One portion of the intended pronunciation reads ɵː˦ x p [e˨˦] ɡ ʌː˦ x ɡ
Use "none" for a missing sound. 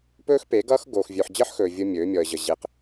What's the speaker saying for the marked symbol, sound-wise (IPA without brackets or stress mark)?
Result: e˨˦